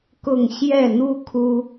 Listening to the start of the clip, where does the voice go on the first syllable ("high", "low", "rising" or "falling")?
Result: falling